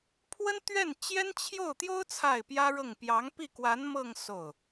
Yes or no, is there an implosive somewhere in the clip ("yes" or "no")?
no